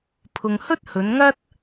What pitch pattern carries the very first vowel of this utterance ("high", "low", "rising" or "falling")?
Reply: low